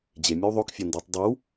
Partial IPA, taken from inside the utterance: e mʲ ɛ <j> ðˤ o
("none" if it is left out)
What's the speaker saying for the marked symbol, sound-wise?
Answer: w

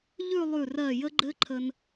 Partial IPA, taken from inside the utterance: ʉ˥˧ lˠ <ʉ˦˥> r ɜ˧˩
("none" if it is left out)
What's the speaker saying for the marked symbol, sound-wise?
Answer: ʉ˧˩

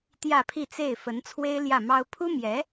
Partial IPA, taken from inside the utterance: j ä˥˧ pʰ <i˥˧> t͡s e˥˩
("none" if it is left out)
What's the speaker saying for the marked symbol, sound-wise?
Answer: i˥˧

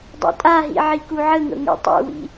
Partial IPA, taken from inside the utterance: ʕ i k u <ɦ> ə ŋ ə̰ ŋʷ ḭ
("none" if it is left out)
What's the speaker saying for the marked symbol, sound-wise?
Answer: ʕ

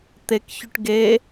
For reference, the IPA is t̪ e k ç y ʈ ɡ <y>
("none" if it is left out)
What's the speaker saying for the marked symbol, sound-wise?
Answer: e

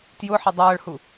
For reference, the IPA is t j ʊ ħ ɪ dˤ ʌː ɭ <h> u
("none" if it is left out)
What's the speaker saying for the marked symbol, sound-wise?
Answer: h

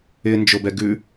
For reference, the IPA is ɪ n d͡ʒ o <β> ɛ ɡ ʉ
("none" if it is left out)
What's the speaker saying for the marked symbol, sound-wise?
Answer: b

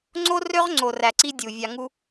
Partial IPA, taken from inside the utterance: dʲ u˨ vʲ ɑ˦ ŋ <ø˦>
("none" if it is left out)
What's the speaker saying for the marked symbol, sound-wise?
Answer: u˦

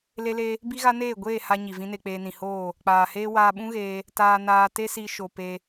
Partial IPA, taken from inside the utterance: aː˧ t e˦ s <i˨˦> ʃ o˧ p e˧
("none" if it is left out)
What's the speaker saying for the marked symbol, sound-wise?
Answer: i˧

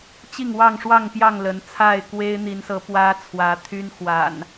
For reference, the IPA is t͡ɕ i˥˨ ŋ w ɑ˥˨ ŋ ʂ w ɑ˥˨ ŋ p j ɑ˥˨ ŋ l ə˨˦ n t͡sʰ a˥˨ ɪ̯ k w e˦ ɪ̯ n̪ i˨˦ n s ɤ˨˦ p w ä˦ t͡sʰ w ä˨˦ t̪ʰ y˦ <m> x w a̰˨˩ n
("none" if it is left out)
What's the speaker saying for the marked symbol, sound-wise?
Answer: n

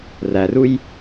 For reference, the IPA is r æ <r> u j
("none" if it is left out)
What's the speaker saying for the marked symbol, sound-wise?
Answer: r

